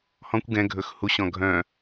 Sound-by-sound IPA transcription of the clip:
h ɔ̃ kʷ ɡ ɛ̃ ɡʱ ɵ x h u ɕ ɔ̃ ɡʱ œ̃

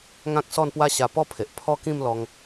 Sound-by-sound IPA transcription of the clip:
ŋ ã˦ k̚ s ɔ˥˧ n p w a˦ ɕ a˧ p ɔ˥˧ pʰ e˨ ʔ pʰ ɔ˦ k ĩ˥˧ m l ɔ˧ ŋ

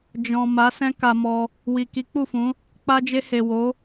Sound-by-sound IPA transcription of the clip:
d͡ʒ ɔ̃˨ m a˨˦ s ɛ̃˦ k a˧ m ɔ˧ | w i˨ k i˨˦ k͡p u˦˨ f ũ˨˦ | k͡p a˧ d͡ʒ e˧ h e˨ w o˨˦

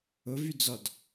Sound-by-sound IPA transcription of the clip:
ʊ v y d͡z ɔ d

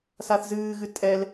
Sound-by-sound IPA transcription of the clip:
s a θ z ɨː ɣ ɨ tʼ ɛ l

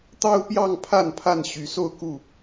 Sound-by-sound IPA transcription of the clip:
t̪ ɑ˦ ʊ̯ p j ɑ˥˨ ŋ pʰ a˥˨ n pʰ a˥˨ n ɕ y˨˦ s o˥˨ ʊ̯ k u˥˨

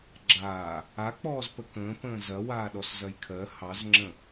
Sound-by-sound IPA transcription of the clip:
ɡ͡ǁ aː | a k͡p ɔː z p ə k ə̃ː p ə̃ː z ɐ w aː ɗ ɔ s z ɐ j kʰ ɜ h ɑ z ŋ͡ǁ ə̃

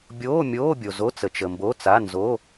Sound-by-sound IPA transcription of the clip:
bʲ oː˧˥˧ mʲ oː˧˥˧ bʲ o˨ z o˧˥˧ t͡s ə˨ t͡ʃ ə˨ m b o˧˥˧ t͡s a˧˥˧ n z o˧˥˧

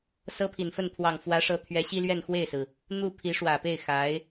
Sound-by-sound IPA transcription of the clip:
s ɤ˥ pʰ i˨˩ n f ə˥˩ n pʰ w ɑ˨˩ ŋ f w ä˧˥ ʂ ɤ˧˥ t̪ʰ ɥ ɛ˧˥ ɕ i˥ l ɥ ɛ˥˧ n x w e˥˩ ɪ̯ s ɹ̩˩ | n̪ u˥˩ pʰ i˧˥ ʂ w ä˨˩ p e˥˩ ɪ̯ x a˧˥ ɪ̯

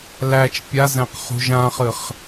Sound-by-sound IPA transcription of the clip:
l æ t͡ʃ pʲ a z æ̃ q χ ṳ ʒ ã χ ɨ χ

